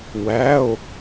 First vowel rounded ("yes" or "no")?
no